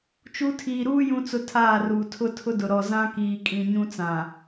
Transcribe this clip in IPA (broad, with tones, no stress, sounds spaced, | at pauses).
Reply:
t͡ʃ u˦ tʰ iː˨ ɾ uː˦ j ũ˦ t͡s ʊ˦ tʰ aː˦˨ r uː˨ tʰ ʊ˦ tʰ ʊ˦ d ʊ˨ ɾ ɔ˨ z ã˦ k iː˨ kʼ ĩ˨ ɲ ũ˦ t͡s ã˨